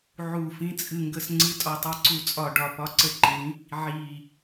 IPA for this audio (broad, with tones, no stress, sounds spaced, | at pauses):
ʕ u˧˩ f ĩ˨˦ t͡sʼ ɨ˧˩ ŋ ɡ ə˧˩ s ŋ͡ǀ ɨ˨˦ tʼ ɒ˧˩ tˤ i˧˩ ǀ u˧˩ t͡sʼ ɒ˧˩ ɖ ɒ˧˩ p ɒ˨˦ ǀ ə˧˩ ǃ ĩ˨˦ | ʕ i˧˩